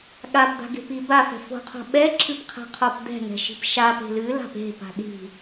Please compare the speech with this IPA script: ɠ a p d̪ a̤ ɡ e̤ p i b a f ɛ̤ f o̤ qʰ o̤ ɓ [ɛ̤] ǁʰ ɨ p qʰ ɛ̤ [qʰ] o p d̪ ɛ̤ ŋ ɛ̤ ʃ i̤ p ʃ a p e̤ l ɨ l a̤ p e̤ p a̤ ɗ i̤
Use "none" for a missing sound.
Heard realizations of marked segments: ɛ, qʰ

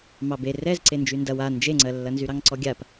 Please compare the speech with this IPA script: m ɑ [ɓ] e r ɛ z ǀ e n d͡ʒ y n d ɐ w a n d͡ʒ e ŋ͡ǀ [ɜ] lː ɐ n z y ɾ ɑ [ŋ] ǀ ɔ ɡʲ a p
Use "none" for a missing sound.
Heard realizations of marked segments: b, ɜ, ŋ

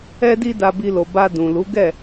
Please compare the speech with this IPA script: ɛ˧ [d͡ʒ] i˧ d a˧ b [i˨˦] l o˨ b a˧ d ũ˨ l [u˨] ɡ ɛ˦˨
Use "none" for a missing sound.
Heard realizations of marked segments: d, i˧, u˨˦

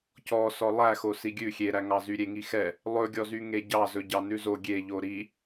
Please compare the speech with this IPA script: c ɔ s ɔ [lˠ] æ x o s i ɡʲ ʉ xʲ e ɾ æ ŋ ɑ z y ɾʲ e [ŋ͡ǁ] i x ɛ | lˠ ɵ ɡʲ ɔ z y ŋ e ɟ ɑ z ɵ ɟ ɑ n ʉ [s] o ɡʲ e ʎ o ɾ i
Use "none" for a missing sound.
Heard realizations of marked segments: lˠ, ŋ, z

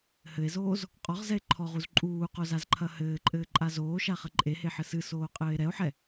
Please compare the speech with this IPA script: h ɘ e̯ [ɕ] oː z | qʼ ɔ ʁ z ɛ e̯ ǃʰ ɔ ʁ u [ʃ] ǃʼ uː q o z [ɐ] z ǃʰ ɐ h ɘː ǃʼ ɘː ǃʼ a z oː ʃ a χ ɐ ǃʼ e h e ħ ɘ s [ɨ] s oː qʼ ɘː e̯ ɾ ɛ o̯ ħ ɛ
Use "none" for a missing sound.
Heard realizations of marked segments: z, z, a, ɨ

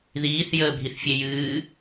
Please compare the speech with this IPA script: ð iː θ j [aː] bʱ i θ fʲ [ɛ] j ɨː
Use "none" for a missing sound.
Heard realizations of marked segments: əː, e

